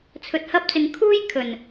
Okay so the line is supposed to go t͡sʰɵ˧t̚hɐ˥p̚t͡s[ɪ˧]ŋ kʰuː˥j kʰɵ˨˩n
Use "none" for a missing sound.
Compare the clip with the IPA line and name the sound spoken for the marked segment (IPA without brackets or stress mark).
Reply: ɪ˧